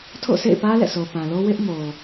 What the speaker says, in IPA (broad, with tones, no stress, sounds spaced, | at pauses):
tʰ o̰˦˨ sʰ ḛ˦˨ ɪ̯ p ä˦ l ɛ̰˦˨ s o˨ p ã˨ l o˦ w ɪ˦ ʔ m o˨